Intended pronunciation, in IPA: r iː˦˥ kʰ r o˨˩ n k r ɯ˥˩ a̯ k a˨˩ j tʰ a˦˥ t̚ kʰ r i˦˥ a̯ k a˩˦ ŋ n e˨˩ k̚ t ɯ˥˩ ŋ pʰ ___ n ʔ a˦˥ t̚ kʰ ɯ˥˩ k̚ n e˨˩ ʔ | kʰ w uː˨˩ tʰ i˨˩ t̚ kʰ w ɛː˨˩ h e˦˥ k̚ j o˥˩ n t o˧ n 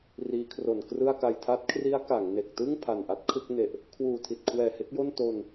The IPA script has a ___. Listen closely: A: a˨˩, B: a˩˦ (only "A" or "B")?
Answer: A